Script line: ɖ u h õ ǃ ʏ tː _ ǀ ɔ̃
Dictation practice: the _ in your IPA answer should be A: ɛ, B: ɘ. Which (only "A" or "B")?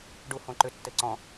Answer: B